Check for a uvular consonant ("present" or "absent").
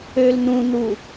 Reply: absent